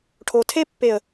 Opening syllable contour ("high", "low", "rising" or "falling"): low